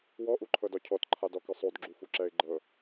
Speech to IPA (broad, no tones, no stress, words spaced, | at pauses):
wɔʔuǃʰɤdɔ cʰɔtǃʰadɔkɯ sˤodɡ͡ǁufuǁɛɪ̯ ɡ͡ǃɤ